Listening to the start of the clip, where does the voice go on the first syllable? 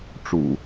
low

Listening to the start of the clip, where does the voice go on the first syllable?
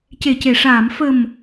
low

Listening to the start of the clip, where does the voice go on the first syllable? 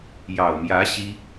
low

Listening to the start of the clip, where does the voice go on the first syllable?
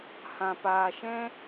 low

